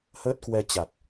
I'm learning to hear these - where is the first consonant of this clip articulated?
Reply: throat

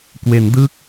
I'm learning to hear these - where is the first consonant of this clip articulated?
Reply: velum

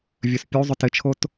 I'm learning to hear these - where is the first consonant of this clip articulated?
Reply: lips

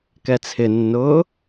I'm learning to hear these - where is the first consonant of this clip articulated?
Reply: velum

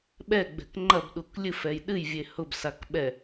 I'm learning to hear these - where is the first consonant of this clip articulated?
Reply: lips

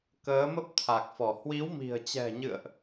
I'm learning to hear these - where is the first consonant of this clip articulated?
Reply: velum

